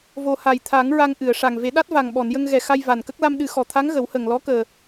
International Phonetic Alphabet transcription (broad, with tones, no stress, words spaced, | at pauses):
vo˨˩ ha˨˩jt̪ʰa˨˩˦ŋ ɹa˧ŋʔɨ˨˩˨ə̯ʂa˨˩ŋ ve˨˩˦ɗa˦˥t̚ va˨˩ŋɓɔ˨˩˨n jə˧ŋɣɛ˨˩ xa˧j va˨˩nkə˦˥k̚ la˧mɗɨ˨˩˦xɔ˨˩˨t̪ʰa˧˥ŋ ɣə˨˩˦whə˨˩ŋ lɔ˧˥kəː˨˩